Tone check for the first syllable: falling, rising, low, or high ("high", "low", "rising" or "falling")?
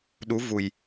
rising